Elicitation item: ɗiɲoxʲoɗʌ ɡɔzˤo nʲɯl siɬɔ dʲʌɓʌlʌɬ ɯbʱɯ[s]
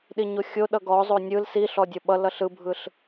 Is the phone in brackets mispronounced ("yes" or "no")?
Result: yes